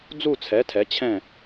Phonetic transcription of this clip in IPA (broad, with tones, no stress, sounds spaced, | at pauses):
d͡z u˥˧ t͡sʰ ɛ˨˥ tʰ ɛ˨˥ t͡ɕʰ ɛ̃˥˧